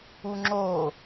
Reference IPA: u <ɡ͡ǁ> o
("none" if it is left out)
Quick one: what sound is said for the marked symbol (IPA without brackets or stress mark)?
ŋ͡ǁ